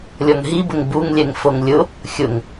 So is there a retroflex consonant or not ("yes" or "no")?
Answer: no